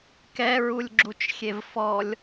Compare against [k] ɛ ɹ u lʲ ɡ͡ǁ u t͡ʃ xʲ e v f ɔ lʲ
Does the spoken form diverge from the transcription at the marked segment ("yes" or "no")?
no